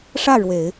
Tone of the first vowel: falling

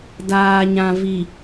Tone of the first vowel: low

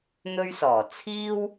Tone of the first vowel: high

